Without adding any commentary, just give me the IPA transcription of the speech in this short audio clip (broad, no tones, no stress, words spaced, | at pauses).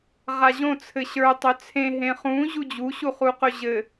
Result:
ʁaʑõ t͡sʰɘɕə˞ tˤœt͡sʰẽ ɦẽχũ ʑud͡ʑu ɕuχuqɵʑɘ